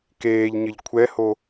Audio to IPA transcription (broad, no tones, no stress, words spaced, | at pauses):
keːʎɲɘʎ kʷʰɛho